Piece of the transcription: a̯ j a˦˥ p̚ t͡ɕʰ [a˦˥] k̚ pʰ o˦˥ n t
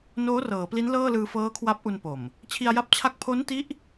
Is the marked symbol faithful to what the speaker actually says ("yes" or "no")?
yes